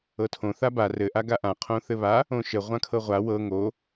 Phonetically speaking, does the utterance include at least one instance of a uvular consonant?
yes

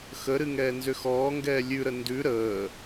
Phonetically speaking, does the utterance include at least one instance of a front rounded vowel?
yes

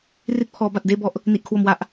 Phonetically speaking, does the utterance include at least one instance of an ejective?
no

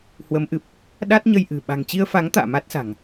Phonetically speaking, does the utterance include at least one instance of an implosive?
yes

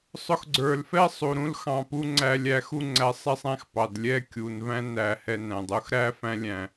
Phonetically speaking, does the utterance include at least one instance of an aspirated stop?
no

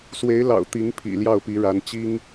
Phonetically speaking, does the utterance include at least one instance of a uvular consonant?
no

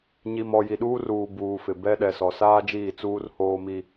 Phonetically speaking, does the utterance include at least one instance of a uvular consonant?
no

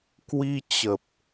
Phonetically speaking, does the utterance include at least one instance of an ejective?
no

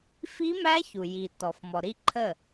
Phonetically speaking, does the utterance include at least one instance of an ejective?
no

